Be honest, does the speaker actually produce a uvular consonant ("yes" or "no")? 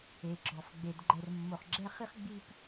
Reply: yes